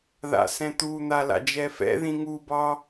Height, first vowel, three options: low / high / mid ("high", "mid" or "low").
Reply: low